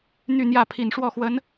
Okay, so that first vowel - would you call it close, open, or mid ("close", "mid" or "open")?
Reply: close